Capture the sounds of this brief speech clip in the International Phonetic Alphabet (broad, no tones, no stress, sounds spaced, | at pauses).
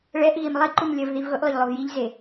ɭ ɛ ʔ ɣ i m lˠ i ǃ u m lʲ ɐ v ð i v ɣ ʊ ʔ lˠ ʊ ʎ lˠ o v j i ʎ z e